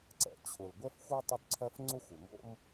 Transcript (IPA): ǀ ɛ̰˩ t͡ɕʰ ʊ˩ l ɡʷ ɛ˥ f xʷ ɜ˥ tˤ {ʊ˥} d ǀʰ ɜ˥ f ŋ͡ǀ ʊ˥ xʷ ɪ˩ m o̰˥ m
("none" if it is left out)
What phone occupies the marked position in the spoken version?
ʊ˥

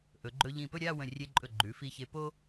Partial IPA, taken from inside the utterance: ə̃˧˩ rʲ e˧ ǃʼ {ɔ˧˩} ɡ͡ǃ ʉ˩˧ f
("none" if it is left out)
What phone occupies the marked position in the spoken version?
ɵ˧˩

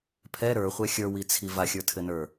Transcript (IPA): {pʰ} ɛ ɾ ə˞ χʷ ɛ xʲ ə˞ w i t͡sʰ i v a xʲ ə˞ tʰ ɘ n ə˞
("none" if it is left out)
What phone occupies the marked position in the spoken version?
pʰ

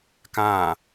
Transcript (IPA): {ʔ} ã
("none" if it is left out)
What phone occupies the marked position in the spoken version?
k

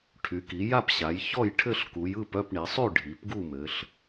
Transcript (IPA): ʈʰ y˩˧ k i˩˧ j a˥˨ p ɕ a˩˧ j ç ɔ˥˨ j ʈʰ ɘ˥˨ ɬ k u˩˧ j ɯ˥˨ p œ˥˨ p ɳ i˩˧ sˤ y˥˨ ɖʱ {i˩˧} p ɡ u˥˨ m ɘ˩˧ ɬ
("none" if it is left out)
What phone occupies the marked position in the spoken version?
i˩˧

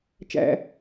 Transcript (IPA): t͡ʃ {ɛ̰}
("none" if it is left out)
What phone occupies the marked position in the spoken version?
æ̰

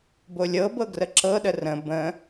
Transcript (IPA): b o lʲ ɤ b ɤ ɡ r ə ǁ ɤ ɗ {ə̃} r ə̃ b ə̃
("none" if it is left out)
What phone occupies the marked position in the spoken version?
ə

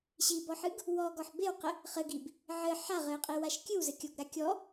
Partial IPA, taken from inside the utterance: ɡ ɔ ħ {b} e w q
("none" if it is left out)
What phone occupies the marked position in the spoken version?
b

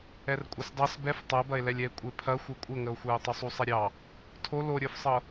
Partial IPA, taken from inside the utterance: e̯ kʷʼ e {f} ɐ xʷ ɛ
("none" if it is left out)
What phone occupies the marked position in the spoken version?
pʰ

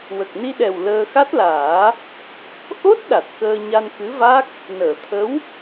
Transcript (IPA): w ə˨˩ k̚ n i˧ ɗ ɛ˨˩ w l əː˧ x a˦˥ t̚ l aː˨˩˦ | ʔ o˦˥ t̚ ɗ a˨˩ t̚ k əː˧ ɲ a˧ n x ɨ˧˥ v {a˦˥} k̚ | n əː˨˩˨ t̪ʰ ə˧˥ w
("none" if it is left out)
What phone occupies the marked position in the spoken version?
a˦˥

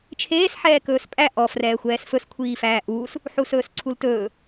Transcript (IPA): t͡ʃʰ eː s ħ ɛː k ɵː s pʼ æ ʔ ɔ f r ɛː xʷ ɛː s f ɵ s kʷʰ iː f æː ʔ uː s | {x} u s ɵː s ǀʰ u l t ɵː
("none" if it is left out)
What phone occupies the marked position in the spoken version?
ħ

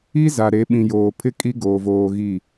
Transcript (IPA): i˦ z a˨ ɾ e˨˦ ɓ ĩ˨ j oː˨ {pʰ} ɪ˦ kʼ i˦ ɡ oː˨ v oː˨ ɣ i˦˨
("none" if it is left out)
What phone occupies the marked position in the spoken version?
pʰ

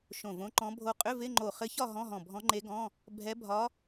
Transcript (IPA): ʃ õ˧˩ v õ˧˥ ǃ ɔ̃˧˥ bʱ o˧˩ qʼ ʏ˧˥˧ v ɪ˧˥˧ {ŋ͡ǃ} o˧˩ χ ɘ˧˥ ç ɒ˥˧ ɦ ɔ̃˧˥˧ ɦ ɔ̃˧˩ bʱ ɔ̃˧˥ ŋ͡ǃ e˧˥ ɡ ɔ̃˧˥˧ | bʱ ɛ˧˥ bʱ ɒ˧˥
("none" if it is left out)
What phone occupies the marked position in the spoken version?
ŋ͡ǃ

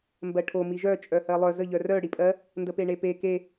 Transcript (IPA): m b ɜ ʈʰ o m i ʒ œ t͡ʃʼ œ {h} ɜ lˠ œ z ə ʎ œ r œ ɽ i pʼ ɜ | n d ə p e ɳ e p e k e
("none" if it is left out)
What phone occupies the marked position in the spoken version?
h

